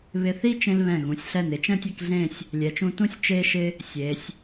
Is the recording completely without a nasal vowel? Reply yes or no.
no